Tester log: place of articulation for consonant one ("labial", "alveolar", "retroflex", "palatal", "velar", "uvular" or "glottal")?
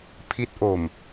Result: labial